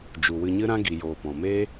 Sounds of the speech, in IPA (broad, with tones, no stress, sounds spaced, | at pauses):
d͡ʒ u˨ w ɨ˧ ɲ ɨ˦ ɾ ã˦ ɡ i˨ j oː˨ p ɔ̃˨ m eː˦